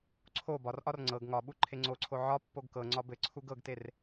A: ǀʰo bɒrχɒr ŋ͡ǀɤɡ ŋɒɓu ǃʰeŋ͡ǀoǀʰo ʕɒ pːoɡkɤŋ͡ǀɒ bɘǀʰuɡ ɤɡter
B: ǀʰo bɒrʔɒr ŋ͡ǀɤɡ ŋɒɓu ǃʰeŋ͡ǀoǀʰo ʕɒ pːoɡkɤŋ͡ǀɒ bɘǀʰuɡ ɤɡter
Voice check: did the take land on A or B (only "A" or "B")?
B